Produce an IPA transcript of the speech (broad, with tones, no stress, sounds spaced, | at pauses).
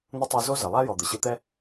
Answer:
n̪ ə˥ tˤ u˧ z o˥ z ə˩ lˠ a˥ j ɔ˩ d̪ ə˩ ɕ ɯ˧ t̪ ɛ˥